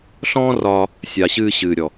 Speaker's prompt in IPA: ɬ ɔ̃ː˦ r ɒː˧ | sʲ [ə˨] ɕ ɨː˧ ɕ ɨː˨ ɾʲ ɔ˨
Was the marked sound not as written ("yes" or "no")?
yes